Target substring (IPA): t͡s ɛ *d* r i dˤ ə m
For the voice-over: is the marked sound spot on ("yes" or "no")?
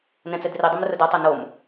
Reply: yes